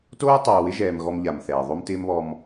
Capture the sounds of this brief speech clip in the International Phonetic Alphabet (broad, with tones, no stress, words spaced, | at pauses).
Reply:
toː˦tˤoː˨wɪ˦ʒɛː˨m ɣɔ˦mʎa˨mθɛː˨ ðˤo˦mtɪː˦mβɔ˦m